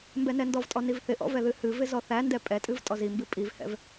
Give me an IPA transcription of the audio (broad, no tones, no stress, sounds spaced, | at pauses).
m b ɛ n ɛ n d ɔ v tʼ ɔ n i v θ ɪ ʔ ɔ̰ v ɛ ð ɨ h ɨ v ɪ z ɔ θ æ n d ɛ pʼ ɛ tʼ ɨ v tʼ ɔ z i m b ɨ pʼ i v h ɛ̰ v